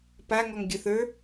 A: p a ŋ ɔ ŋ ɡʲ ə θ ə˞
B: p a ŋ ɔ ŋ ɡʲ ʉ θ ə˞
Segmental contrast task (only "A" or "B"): A